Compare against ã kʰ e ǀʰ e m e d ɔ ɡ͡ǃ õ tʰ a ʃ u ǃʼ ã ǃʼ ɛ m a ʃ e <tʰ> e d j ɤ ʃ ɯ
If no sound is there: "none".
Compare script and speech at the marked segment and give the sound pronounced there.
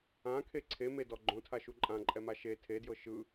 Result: tʰ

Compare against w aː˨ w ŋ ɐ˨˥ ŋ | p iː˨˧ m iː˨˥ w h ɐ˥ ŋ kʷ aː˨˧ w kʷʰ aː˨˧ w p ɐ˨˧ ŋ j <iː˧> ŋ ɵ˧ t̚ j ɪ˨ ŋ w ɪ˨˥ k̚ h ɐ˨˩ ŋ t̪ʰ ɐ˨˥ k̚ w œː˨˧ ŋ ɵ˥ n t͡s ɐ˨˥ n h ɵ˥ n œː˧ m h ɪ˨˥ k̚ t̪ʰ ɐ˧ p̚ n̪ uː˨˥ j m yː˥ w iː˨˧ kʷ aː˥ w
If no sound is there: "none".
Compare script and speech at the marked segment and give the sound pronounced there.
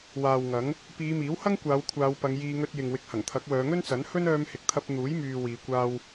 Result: iː˧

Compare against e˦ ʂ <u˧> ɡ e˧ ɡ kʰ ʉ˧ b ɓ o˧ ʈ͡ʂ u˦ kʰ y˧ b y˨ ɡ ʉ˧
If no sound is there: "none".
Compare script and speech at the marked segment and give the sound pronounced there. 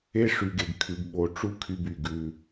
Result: y˧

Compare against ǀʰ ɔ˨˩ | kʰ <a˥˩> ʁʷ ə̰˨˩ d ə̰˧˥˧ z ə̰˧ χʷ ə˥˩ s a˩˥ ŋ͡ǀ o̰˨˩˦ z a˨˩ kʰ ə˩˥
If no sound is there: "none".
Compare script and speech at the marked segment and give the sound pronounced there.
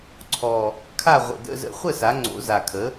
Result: a˥˩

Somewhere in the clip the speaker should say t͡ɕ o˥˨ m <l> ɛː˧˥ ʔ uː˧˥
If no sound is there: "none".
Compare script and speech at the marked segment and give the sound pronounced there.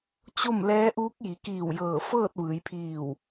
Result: l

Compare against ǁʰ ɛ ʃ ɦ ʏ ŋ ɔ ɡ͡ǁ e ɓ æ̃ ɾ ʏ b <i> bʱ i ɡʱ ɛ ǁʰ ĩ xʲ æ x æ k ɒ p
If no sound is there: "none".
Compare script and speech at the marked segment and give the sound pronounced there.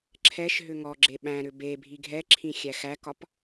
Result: e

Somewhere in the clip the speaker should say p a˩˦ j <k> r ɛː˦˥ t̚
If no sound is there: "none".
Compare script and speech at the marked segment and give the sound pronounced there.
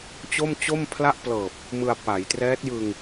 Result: t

